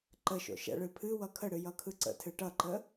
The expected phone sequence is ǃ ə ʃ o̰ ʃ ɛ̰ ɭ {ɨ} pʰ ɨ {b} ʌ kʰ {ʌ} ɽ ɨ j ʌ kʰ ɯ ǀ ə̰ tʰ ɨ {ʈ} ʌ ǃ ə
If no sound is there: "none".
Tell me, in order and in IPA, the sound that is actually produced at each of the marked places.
ɨ, w, ə, ʈ

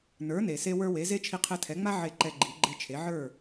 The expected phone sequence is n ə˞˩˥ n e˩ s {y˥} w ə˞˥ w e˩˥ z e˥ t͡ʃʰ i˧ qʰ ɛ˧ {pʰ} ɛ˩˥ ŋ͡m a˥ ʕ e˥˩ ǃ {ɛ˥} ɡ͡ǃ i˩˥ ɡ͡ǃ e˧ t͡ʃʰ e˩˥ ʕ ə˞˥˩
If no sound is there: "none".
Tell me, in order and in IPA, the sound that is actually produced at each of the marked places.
e˥, tʰ, ɛ˧

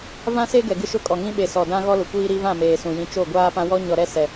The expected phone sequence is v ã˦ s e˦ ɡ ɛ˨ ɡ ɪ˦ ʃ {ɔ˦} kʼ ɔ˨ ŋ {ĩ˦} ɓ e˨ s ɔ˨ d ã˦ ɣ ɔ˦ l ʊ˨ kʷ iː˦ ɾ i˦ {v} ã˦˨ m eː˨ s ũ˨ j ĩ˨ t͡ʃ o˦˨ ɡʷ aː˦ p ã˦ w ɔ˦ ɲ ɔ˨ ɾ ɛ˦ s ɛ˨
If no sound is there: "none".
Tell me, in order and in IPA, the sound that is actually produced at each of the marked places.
ʊ˦, ĩ˦, v

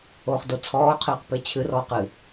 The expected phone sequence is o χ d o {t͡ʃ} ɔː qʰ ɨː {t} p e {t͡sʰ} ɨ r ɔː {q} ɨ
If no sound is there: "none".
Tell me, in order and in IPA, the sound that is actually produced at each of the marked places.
t͡sʰ, q, t͡ɕʰ, q

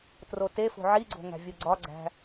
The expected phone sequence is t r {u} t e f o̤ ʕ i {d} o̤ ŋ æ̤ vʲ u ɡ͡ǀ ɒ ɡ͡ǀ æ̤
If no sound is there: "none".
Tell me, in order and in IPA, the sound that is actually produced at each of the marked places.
o, ɡ͡ǀ

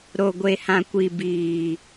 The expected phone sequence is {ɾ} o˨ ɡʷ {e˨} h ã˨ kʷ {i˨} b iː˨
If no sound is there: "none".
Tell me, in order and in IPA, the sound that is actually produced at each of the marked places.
ɾ, e˨, i˨

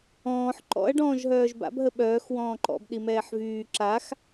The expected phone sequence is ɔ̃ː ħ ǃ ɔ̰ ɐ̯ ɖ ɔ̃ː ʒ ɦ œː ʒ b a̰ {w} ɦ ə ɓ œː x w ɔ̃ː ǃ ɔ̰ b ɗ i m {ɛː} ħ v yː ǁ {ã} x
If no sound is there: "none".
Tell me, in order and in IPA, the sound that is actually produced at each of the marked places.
b, ɛː, a

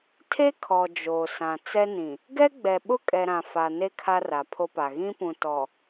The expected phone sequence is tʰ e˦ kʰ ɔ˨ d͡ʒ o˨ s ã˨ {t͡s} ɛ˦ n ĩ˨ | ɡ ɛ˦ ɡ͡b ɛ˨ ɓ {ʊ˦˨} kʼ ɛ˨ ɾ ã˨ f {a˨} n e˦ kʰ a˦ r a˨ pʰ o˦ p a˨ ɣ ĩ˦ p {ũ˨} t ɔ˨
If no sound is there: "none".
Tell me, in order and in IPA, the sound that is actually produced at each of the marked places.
t͡s, ʊ˦, a˨, ũ˨

